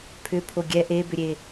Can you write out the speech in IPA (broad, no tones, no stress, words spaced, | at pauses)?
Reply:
pʰʏpʰo ɡʲɛ ʔebʏɾʲe